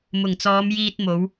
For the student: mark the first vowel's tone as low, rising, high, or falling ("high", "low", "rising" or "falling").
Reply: low